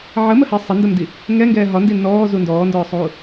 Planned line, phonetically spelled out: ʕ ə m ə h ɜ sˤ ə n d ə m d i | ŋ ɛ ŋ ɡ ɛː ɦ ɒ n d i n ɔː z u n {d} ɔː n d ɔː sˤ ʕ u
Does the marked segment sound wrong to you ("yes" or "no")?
no